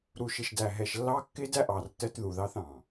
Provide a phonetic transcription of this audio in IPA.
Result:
ɾ u˨ ʃ ɪ˨ ʃ d æ˨ ɦ ɛ˨ ʃ lː ɑ˦ kː ɪ˦ d æ˦ ʔ ɑ˨ r t ɜ˦ t ð u˨ ð ɑ˦ θ ɑ̃˨

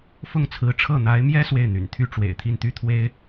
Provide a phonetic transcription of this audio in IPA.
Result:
f ʊ˥˩ ŋ t͡sʰ ɹ̩˧˥ ʈ͡ʂʰ ɤ˥˩ n̪ a˧˥ ɪ̯ m j ɛ˥ s w e˥˩ ɪ̯ n̪ y̰˨˩ n t̪ʰ y˥ ʈ͡ʂ w ḛ˨˩ ɪ̯ t̪ʰ i˥˩ n t̪ y˥ t̪ʰ w e˥ ɪ̯

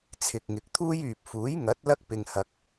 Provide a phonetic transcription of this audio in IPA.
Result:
t͡sʰ ɪ˨ k̚ ŋ ɪ˨ k̚ t̪ʰ uː˥ j yː˨ p̚ f uː˨˥ j ŋ ɐ˨˥ t̚ l ɐ˥ k̚ p ɪ˧ ŋ h ɐ˧ k̚

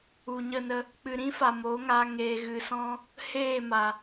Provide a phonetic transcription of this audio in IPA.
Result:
u˨ ɲ ə˦˨ n ə˧ | k͡p ɨ˨ ɾ ĩ˦ f a˨ m o˨˦ ŋ a˧ ŋ eː˨ ɣ ɨ˨ s ɔ̃˧ | h eː˦˨ m a˨

